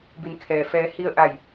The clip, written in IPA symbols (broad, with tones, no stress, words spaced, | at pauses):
bi˩˧nkʰɛː˩ fɛː˩˧hi˧ə̯ʔa˧˩j